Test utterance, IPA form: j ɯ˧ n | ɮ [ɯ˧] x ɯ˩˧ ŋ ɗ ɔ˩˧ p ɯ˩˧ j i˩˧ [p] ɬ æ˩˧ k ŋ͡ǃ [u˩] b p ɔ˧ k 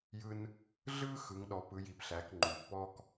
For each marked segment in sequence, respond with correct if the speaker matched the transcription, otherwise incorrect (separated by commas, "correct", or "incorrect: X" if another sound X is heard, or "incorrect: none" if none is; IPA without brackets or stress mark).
incorrect: ɯ˥, correct, correct